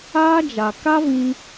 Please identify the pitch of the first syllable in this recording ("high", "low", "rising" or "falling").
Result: high